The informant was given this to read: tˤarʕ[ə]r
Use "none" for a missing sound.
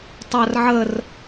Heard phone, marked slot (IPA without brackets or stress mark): ə